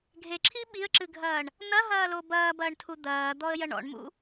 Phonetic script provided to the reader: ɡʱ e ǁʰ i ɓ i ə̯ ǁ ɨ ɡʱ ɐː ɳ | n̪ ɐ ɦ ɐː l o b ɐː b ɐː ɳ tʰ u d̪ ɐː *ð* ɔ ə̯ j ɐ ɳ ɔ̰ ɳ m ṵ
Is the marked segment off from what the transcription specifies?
yes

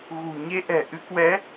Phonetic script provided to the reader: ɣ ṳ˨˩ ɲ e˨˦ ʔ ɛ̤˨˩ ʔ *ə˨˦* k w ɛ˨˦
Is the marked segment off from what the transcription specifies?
yes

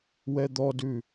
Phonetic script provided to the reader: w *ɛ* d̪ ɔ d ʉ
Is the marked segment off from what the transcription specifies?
no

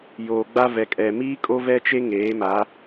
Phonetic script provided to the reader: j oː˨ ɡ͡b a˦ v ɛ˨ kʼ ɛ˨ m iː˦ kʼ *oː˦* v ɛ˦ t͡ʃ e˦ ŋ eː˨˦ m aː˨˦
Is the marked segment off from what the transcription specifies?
yes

